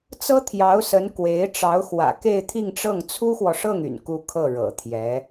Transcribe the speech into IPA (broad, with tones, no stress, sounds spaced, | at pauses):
t͡s ɤ˥ t̪ʰ j ɑ˧˥ ʊ̯ s ə˧˥ n k w e˧˥ ɪ̯ ʈ͡ʂ ɑ˧˥ ʊ̯ x w ä̰˨˩ k e˥˧ ɪ̯ t̪ʰ i˥˧ ŋ ʈ͡ʂ ɤ˥˩ ŋ t͡sʰ u˥ x w ɔ˨ ʂ ɤ˥˩ ŋ y̰˨˩ n k u˥ kʰ ɤ˥˩ ɻ ɤ̰˨˩ t̪ʰ j ɛ˧˥